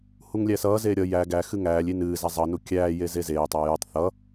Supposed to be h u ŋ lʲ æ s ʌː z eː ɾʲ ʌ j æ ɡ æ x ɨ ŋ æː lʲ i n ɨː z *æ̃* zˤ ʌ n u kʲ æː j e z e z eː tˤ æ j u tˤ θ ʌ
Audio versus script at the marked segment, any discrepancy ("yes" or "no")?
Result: yes